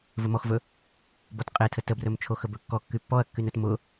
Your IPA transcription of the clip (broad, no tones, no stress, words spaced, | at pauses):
vɵmɔxvɵ | bɔtqʼetʰə təbrɵmt͡ʃʰo xəbɵkːɔ kːypːɔɐ̯kːynɵt mʊ